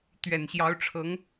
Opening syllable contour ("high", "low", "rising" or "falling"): low